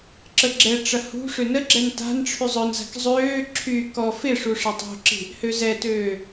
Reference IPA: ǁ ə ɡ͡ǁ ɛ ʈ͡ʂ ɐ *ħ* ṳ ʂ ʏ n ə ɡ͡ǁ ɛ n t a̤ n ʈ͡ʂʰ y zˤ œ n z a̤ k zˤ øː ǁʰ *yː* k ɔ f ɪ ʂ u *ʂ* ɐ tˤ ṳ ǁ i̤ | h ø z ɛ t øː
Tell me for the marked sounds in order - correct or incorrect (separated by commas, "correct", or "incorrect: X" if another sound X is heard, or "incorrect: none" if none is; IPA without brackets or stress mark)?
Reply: incorrect: h, correct, correct